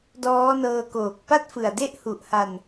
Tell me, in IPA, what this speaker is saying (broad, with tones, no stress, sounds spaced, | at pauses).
d ɔː˦˥ n ɤː˧ k oː˨˩ k̚ p a˥˩ t̚ f ɯ˨˩ a̯ d e˦˥ ʔ h u˨˩ ʔ h a˧ n